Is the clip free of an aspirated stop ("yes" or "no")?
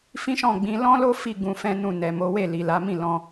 yes